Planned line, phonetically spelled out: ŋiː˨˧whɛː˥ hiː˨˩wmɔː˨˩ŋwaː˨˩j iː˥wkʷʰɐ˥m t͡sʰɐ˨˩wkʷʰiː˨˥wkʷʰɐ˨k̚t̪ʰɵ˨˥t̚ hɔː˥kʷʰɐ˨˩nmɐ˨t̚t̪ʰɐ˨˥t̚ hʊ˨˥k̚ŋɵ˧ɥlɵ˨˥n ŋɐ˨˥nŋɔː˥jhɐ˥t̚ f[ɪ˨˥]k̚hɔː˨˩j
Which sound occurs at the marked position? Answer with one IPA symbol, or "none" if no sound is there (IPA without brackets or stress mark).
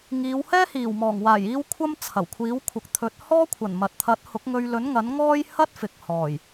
ɪ˨